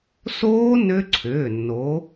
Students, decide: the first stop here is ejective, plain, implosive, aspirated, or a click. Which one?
click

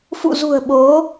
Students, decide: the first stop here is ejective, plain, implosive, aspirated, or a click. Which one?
implosive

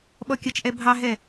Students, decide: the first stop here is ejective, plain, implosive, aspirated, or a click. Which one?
implosive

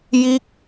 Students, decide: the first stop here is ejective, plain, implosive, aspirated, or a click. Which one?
plain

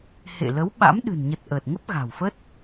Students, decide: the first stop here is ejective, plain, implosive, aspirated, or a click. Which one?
implosive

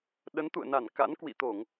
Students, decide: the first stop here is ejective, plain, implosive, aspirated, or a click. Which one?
implosive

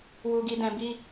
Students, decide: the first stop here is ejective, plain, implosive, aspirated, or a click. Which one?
plain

